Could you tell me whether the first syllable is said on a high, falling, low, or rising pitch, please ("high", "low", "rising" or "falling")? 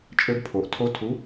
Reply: high